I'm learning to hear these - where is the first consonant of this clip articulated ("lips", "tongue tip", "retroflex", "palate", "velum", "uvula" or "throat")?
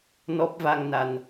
tongue tip